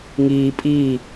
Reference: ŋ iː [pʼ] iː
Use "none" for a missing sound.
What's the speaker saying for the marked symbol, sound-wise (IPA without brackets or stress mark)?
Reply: pʼ